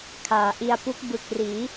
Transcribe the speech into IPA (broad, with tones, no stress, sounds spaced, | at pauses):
kʰ aː˩˦ ʔ i˧ a̯ p u˦˥ k̚ b ɯ˨˩ k̚ r iː˩˦